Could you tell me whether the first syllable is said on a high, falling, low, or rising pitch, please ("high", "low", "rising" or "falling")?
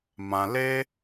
low